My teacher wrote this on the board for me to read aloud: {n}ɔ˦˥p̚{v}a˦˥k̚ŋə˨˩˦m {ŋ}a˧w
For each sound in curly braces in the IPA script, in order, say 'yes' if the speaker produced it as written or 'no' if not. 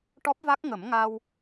no, yes, yes

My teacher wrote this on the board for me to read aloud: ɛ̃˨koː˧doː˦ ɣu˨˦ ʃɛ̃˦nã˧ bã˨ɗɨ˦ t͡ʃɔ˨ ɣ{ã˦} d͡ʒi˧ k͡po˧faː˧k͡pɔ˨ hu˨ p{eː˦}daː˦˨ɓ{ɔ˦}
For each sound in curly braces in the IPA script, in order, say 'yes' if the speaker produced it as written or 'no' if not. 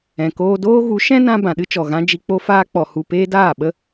yes, yes, no

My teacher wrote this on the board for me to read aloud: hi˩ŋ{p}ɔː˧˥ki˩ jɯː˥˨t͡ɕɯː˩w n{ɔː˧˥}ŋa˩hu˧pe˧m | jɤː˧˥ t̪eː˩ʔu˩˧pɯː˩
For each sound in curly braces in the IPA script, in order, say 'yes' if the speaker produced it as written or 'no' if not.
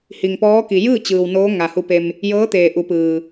yes, no

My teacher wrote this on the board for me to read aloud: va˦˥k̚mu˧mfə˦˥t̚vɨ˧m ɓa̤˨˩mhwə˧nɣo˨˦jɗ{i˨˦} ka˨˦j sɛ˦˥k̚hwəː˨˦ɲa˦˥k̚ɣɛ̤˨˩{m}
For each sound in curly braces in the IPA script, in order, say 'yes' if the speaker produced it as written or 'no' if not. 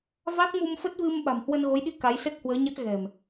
no, yes

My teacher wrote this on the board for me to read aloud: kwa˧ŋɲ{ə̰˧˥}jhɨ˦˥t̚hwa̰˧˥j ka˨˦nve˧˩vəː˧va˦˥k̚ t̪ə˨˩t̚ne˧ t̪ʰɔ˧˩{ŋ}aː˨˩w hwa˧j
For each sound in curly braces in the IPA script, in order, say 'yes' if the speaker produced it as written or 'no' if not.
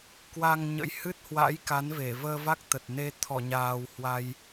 yes, no

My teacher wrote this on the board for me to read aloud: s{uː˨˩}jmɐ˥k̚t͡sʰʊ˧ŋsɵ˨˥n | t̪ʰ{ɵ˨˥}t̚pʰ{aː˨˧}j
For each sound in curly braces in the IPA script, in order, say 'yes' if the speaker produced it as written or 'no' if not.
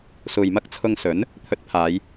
no, no, yes

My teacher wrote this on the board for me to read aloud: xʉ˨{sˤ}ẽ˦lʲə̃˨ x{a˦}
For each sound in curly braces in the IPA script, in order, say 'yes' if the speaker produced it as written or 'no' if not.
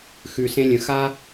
no, yes

